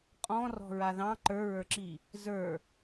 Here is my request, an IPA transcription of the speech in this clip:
qʼɔ̃rɔ̤ɹa ðɑ̃ ǃə˞ɹə˞ǁi | zə˞

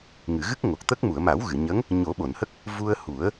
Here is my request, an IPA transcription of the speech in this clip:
ŋɨ˨˩˨ɣɨ˦˥k̚ ŋo˨˩k̚t̪ə˦˥k̚ mu˨˩˨ə̯ma˨˩˦w ɣɨ˨˩˨ɲə˧˥ŋ | ɲo˨˩˦ɓo˨˩˨nhə˦˥k̚ | vu˧ə̯ hu˨˩˦ə̯

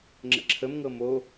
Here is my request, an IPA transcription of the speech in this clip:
ŋ͡ǁə̰ǁʰəmŋɤ mo

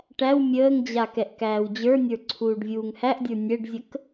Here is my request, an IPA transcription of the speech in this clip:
ʈæw mʲəːŋd͡ʑa kɛʔkæːwd͡ʑə˞nʲə˞ ǀʰuːɖvʲuːŋhæʔdʲə˞ nʲɛɖzʲək

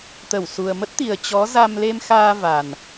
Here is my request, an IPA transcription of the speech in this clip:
t̪ə˧˩wsu˨˩ə̯mə˦˥t̚t̪i˨˩ə̯ t͡ɕɔ˨˦za˧m le˧mxaː˧ va˨˩n

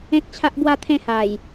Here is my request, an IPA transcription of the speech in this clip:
ẽ˦k̚t͡ɕʰa˦ʔ bwa˥˧t̪ʰẽ˥˧ ha˨˩j

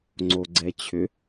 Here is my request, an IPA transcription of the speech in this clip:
ŋ͡ǀoɡ͡ǀɛt͡ɕʰʏ

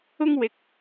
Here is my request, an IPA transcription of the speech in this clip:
ʊ˥ŋwɪ˧k̚

